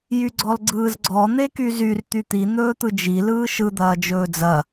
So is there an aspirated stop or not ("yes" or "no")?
no